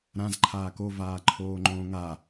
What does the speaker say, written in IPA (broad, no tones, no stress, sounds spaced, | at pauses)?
ɾ ã z ǃʰ aː k o v aː ǃʰ oː ŋ͡ǃ õː ŋ a